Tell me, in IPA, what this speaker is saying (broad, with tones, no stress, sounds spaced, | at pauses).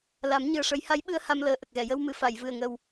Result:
l a˨˩˦ m ɲ ɨ˨˩ ə̯ ʂ ə˨˩˦ j h a˧˥ j ɓ ɨ˧ ə̯ h a˧ m l əː˨˩˦ ʔ ə˨˩ k̚ ɣ ɛ˨˩˨ j ə˧ w m ɨ˨˩˨ f a˨˩˨ j v ɨ˨˩ ə̯ ŋ ə˨˩ w